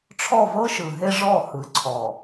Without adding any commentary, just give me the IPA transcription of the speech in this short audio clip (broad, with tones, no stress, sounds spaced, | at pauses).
ʈ͡ʂʰ ɔ˦˨ v ɤ˦ ʃ ɯ˨ ɦ e˦ ʐ ɔ˦˨ h ɯ˨˦ ǀʰ ɔ˨